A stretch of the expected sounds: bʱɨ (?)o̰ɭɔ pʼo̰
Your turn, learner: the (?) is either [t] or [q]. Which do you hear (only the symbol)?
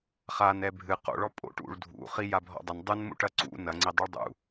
q